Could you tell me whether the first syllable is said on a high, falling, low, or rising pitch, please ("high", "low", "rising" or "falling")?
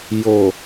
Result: low